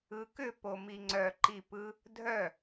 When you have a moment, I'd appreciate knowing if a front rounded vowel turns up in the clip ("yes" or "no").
yes